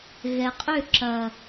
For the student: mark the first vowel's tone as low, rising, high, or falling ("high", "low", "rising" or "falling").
low